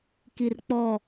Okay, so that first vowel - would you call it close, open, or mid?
close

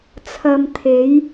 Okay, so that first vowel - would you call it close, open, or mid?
open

